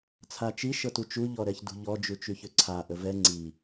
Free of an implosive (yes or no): yes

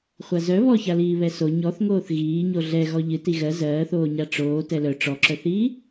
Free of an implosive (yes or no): yes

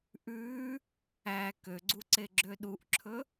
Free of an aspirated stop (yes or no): no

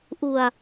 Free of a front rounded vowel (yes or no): yes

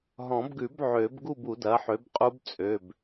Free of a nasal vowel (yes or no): no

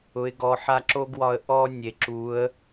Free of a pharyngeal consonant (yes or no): no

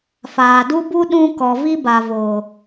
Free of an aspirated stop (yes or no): yes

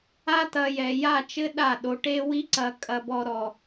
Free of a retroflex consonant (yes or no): no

